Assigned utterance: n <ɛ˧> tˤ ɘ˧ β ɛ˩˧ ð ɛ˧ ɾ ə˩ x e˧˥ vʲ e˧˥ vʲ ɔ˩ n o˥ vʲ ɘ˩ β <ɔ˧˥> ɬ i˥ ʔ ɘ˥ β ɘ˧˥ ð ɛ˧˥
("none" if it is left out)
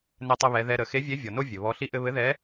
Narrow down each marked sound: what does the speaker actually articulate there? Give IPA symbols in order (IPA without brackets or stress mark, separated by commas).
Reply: ɛ˧, ɔ˧˥